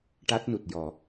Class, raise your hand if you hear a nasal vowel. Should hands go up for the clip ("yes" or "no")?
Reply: no